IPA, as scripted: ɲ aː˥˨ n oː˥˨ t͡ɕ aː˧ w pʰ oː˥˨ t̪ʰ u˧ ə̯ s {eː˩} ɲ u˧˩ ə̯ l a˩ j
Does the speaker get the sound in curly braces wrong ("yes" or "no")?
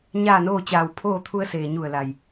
no